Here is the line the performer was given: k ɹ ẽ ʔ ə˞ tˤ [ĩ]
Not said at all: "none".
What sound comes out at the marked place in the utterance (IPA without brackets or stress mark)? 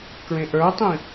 ĩ